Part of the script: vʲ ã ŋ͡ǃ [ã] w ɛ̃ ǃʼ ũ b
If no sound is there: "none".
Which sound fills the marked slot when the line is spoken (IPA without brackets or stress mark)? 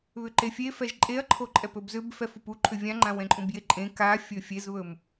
ã